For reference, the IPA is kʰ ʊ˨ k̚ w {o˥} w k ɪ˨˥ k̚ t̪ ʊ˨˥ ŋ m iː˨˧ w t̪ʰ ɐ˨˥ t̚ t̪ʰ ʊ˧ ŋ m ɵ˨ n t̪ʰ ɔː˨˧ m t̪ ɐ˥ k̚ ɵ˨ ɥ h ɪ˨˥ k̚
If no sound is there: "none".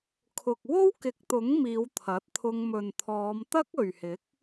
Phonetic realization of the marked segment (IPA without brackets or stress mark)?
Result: o˥